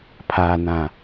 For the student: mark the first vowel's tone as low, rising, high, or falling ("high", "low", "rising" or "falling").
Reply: low